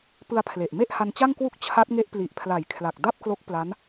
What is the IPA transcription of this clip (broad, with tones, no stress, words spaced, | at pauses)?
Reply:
pɯ˧a̯pʰle˨˩ʔ me˥˩ʔha˧nt͡ɕa˥˩ŋ kwu˥˩k̚ t͡ɕʰa˦˥t̚ŋe˦˥ʔ pli˨˩ʔpʰla˨˩jkʰla˨˩k̚ da˥˩p̚klo˦˥k̚pla˦˥n